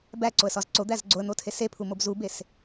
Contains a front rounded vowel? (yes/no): no